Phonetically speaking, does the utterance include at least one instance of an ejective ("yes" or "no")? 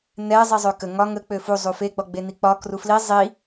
no